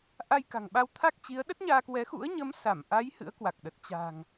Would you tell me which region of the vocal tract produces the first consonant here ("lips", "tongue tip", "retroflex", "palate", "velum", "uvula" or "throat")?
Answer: throat